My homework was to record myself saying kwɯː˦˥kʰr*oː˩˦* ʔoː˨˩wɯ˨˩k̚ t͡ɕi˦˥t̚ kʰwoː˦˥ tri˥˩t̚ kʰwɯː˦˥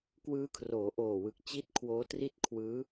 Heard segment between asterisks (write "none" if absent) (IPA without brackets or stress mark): oː˩˦